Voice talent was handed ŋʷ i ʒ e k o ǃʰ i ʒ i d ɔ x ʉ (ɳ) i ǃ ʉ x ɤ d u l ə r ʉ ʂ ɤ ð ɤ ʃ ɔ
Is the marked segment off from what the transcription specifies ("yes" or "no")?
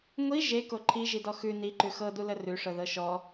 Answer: yes